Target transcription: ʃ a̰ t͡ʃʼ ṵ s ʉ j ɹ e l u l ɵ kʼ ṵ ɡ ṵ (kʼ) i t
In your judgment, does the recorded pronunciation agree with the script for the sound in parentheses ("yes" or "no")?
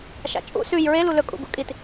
yes